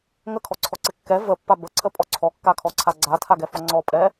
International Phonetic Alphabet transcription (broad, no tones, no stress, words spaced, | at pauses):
ŋəkʰɔǀʰɔǀɪ kːɛ vəpːa bəǀʰəpʼɔ ǀʰɔkːakʰɔǀʰa ɡ͡ǀatʰaɡɛfɔ ŋ͡ǀɔpʼɛ